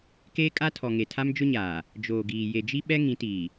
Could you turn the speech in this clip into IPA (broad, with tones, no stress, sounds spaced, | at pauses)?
k eː˦ kʼ a˦ tʰ ɔ˨ ŋ e˨ tʰ a˦ m d͡ʒ ʊ˦ ɲ aː˨ | d͡ʒ oː˨ ɡ iː˨ j e˨ d͡ʒ i˦ ɓ ɛ˦ ŋ ĩ˨˦ t iː˨